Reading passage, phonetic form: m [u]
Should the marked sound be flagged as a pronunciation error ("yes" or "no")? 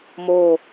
yes